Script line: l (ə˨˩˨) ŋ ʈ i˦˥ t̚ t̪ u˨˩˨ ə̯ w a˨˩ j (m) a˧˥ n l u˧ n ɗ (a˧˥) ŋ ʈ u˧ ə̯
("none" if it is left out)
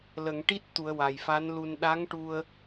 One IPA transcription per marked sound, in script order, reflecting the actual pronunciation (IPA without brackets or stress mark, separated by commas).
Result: ə˨˩˨, f, a˧˥